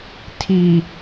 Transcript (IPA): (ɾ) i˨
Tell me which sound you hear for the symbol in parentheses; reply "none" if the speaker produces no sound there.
tʰ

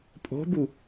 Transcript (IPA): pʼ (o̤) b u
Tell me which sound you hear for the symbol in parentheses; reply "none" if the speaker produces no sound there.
o̤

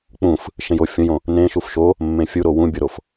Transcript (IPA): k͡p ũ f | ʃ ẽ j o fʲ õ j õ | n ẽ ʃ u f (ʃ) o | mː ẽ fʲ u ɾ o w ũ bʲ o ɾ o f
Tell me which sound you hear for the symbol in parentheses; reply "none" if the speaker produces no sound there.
ʃ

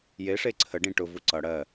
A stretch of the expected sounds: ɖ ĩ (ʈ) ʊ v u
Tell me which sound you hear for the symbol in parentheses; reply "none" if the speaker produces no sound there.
ʈ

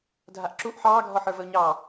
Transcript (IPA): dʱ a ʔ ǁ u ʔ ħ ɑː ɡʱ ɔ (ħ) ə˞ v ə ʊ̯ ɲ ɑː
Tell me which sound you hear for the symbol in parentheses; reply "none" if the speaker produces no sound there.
ħ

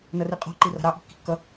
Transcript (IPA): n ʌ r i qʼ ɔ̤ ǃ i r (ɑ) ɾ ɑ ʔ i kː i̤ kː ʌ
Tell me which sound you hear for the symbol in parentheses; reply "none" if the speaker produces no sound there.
ɑ̤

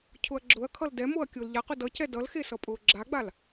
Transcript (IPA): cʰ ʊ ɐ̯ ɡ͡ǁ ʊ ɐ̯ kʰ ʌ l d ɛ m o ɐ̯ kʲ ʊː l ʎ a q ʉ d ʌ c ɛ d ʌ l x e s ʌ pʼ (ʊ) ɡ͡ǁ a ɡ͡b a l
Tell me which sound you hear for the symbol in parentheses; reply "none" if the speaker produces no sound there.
ʊː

